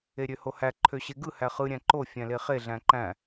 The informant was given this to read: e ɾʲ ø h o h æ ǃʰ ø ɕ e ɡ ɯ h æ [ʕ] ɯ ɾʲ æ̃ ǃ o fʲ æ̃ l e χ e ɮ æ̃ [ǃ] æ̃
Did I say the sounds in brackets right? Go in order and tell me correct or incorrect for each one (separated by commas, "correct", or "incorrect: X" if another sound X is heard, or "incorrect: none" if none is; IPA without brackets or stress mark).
incorrect: χ, correct